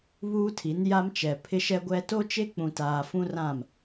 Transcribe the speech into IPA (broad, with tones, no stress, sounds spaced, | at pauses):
β uː˦ tʰ i˨˦ n j a˦ m t͡ʃ ɛ˨ pʰ ɪ˦ ʃ ɛ˦ ɡʷ ɛ˦ t o˦ t͡ʃ e˦ k͡p ũ˨ t aː˨ f ũ˦ r ã˦˨ m